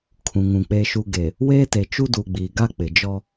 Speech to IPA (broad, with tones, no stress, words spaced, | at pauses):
kʰũ˨ŋũ˨ k͡pe˨ʃu˨ɡe˨ | weː˦te˨ t͡ʃu˦du˨ɡ͡biː˨ ɡa˦k͡pɪ˨d͡ʒɔ˦